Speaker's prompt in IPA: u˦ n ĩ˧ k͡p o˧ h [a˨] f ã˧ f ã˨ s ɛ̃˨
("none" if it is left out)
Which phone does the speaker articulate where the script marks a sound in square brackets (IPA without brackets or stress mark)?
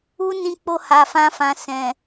a˨